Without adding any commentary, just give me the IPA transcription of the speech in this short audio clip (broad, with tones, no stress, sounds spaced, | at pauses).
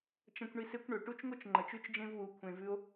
t͡ʃ ɐ̃˧ kʷ ɳ i˧ s e˦ kʷ ɳ ɵ˨ ʈ u˦ t͡ʃ ŋ o˦ t͡ʃ ŋ͡ǃ ɐ˨ t͡ʃ ʉ˦ t͡ʃ d͡ʒ ẽ˦ v w u˨˦ kʷʰ ẽ˧ v ʉ˦ o̯